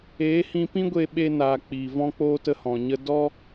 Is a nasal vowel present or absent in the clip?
present